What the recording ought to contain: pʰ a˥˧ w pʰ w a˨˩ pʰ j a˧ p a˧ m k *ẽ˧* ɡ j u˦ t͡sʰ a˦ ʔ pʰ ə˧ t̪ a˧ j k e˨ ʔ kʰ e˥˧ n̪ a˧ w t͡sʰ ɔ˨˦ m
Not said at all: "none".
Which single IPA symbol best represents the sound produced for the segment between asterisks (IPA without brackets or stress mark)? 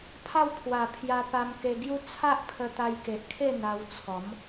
e˧